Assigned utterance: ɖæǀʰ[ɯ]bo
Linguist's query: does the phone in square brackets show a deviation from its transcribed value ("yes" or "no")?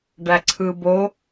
no